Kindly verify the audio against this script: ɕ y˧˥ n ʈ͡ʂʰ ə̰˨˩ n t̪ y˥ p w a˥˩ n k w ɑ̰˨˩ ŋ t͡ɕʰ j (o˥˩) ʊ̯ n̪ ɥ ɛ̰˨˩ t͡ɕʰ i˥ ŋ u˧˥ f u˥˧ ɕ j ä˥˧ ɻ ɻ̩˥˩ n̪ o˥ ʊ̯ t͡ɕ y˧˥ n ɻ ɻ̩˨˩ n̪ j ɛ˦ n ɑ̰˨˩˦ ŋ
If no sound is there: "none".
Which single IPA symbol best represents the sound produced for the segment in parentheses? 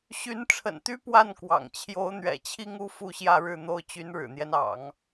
o˧˥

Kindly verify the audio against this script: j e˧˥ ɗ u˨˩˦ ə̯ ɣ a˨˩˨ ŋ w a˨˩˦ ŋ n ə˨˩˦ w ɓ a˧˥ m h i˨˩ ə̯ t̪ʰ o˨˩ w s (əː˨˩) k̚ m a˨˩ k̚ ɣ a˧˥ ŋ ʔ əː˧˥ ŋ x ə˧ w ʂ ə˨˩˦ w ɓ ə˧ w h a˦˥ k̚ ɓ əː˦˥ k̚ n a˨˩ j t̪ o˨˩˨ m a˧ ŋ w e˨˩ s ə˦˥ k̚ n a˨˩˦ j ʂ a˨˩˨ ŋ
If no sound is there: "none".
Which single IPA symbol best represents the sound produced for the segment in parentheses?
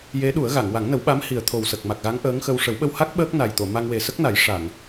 ə˨˩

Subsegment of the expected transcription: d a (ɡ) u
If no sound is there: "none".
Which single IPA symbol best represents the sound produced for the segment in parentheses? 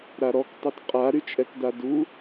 d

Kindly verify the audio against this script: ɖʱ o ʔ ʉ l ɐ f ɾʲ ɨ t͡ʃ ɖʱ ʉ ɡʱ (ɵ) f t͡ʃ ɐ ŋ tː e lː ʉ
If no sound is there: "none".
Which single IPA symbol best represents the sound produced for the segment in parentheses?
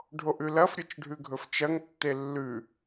ɵ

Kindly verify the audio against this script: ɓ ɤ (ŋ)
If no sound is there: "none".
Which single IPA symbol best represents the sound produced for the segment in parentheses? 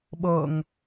ŋ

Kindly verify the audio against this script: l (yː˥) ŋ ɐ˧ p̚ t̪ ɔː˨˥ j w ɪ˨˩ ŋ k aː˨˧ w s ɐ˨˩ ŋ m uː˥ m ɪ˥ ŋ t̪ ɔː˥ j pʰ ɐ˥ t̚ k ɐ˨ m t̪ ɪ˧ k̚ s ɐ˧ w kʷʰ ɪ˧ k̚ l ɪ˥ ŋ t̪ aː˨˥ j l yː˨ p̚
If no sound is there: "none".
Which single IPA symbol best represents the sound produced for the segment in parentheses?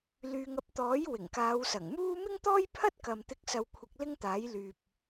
yː˨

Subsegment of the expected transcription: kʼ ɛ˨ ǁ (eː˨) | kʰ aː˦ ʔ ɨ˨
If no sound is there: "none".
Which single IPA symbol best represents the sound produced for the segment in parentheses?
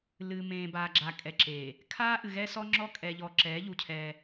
eː˨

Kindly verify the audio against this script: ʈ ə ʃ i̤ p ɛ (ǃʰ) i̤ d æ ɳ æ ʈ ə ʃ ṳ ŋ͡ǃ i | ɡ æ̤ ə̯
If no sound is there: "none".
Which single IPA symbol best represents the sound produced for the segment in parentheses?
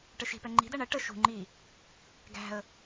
ŋ͡ǃ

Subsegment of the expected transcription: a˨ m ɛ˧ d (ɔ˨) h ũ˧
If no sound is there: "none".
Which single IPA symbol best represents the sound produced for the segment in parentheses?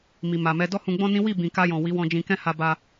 ɔ˦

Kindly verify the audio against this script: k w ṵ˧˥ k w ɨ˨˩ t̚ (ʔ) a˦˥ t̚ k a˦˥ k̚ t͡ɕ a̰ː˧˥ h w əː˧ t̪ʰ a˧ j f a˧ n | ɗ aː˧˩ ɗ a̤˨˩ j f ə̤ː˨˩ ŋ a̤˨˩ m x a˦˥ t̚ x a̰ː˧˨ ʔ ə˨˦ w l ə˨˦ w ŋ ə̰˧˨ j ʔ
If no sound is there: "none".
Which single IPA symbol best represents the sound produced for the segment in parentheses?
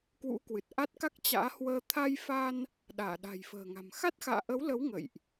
ʔ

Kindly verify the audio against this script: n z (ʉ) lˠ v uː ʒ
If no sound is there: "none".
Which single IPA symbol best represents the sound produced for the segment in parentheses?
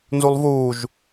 u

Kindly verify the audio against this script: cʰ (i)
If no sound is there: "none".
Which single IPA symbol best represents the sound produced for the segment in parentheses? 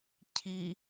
i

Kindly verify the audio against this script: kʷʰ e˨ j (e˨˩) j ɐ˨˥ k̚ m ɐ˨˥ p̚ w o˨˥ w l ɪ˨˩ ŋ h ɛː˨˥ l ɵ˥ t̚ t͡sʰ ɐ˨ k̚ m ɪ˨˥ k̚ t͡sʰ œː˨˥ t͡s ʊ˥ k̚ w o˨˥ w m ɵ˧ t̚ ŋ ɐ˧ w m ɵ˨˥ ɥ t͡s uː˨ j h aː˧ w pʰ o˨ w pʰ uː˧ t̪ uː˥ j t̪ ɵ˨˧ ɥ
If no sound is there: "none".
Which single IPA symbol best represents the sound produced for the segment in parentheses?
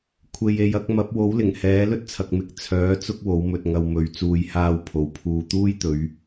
e˨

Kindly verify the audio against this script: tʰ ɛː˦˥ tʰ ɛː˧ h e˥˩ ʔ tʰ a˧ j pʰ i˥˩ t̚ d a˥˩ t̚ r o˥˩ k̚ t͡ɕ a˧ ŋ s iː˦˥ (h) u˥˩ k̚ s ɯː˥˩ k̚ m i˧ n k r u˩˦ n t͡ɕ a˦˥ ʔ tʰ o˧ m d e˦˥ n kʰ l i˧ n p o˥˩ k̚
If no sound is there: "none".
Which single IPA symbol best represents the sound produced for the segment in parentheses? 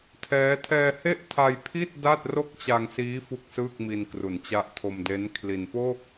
f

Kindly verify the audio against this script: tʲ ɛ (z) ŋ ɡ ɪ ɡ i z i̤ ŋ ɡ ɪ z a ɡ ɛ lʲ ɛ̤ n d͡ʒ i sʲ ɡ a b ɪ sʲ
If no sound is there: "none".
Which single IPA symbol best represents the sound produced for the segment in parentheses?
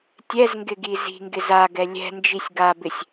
z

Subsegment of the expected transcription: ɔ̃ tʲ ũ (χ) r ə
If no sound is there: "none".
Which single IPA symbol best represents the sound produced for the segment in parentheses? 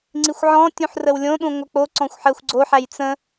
ħ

